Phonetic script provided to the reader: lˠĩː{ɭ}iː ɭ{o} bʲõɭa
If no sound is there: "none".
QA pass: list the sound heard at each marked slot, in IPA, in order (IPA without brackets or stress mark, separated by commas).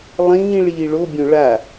ɭ, o